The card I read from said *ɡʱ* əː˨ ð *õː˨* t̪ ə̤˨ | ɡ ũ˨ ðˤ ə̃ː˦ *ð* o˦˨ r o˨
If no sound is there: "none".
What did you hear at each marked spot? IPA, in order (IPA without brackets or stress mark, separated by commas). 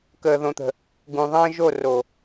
k, õ˨, ʒ